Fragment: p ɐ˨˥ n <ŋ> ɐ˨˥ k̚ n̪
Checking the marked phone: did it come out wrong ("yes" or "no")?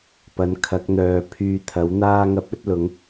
yes